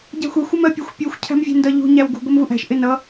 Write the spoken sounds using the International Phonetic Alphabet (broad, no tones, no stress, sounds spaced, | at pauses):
ɟ æ̤ xʷ ɛ xʷ ʊ m ɜ pʲ ʊ xʷ pʲ u xʷ cʰ æ̤ m vʲ ɛ̤ n d ʌ ʎ ṳ ɲ æ w ɡ ṳ ɡʷ ɜ m v u ʔ æ̤ ʃ ʔ ɪ n ʌ